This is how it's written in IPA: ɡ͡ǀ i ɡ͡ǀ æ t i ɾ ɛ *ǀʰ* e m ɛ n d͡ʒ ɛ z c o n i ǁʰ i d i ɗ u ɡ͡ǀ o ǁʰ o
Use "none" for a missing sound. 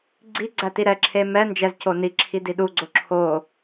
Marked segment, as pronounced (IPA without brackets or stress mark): ǁʰ